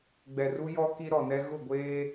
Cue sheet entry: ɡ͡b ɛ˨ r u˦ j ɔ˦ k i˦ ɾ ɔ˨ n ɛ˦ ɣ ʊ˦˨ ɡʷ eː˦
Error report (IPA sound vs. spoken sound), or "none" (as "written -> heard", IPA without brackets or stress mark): none